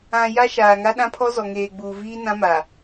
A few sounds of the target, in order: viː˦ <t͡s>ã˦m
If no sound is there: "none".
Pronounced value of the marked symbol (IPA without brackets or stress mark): n